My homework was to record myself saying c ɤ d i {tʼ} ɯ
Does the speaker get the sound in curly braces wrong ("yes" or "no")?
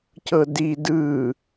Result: yes